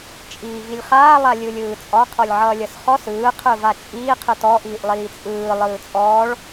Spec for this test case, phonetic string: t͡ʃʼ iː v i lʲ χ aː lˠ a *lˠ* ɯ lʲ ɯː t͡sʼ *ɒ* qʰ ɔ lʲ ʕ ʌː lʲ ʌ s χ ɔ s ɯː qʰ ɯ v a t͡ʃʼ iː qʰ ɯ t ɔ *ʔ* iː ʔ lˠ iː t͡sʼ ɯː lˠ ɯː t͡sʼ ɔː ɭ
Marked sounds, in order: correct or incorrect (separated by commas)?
incorrect, correct, correct